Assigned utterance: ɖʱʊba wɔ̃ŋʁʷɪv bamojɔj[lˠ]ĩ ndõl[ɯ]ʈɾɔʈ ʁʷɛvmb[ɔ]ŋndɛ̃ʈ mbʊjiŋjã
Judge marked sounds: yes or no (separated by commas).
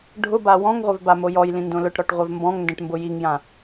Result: no, no, no